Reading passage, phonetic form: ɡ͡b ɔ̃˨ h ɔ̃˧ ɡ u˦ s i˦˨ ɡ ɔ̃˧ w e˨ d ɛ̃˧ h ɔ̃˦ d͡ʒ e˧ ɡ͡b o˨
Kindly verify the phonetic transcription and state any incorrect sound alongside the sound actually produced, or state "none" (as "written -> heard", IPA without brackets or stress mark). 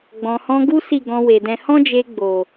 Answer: none